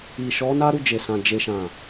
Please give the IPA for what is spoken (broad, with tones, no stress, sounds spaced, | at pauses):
i˨ ʃ ɔ˨˦ n a˦ ɾ u˦˨ d͡ʒ e˨ s ã˨ d͡ʒ e˨ ʃ ã˨